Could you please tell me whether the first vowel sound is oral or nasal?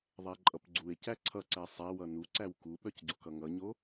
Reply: oral